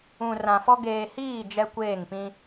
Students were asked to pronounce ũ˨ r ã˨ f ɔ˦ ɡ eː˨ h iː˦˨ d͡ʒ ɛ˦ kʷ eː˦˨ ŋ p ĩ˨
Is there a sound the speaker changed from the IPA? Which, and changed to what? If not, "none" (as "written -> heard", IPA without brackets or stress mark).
ĩ˨ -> ĩ˦